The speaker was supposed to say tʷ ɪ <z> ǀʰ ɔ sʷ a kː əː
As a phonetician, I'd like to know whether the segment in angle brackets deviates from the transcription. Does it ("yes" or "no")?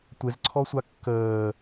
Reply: no